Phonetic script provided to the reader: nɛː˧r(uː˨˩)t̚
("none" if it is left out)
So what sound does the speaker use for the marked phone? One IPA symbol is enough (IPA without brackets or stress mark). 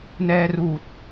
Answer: uː˨˩